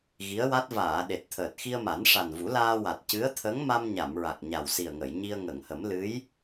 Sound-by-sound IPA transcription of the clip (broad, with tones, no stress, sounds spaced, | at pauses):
ɣ i˧˥ ə̯ w a˦˥ t̚ v aː˨˩˨ ɗ e˨˩ t̚ t̪ʰ əː˨˩ t̚ x i˧ ə̯ m a˨˩˦ n ʂ a˨˩ n v u˨˩˦ l aː˧ w a˨˩ t̚ c ɨ˧˥ ə̯ t̪ʰ ə˧˥ ŋ m a˧ m ɲ a˨˩˨ m ɹ a˨˩ k̚ ɲ a˨˩ w s i˨˩ ə̯ ŋ ə˨˩˨ j ɲ i˧ ə̯ ŋ ə˨˩˨ ŋ h ə˨˩˦ m l ɨ˧˥ j